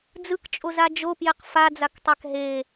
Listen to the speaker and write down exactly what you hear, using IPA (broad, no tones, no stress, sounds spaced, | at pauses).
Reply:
d͡z ɯ k t͡ʃʼ o z a d͡ʒ o p j e q f a d͡z a k tˤ a k ɦ e